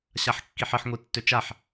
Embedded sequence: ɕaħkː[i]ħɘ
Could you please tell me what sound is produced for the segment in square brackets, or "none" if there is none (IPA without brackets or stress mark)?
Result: i